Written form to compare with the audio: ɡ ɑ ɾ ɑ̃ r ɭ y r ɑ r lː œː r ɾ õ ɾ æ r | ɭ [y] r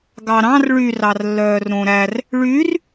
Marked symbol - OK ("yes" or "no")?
yes